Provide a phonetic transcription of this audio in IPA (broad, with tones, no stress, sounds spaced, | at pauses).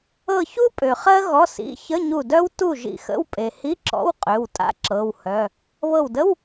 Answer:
ɤ˧˩ ç u˥ pʼ ø˩ χ ɜ˥ ɣ ɔ˩˧˩ s ḭ˩˧˩ ç ə˧˥˧ ɲ u˧˩ d œ˥ w t u˥˩ ʒ ḭ˧˩ x ə̰˧˥˧ w pʼ e˩ h i˧˥˧ ǁ ɔ̰˧˥˧ w qʼ ø˩˧˩ w tʼ a̰˥ ǁ ɤ˩˧˩ w h œ˩˧˩ | β ɤ˧˩ w d ə˧˥˧ w